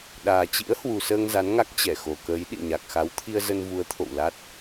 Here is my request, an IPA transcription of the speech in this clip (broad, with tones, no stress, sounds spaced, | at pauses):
ɗ aː˨˩ t͡ɕ ḭ˧˥ ə̯ h w u˨˩ s əː˧ ŋ z a˨˦ n ŋ a˦˥ k̚ t͡ɕ ɛ˧˩ x o˨˩ k əː˨˦ j ɗ ḭ˧˨ ɲ a˨˩ k̚ x a˨˦ w t̪ʰ i˧ ə̯ z ə˧ n v u˨˦ ə̯ t̪ʰ o̰˧˨ w l a˦˥ t̚